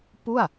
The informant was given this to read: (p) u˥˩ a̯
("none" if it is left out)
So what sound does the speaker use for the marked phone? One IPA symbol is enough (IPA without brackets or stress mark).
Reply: p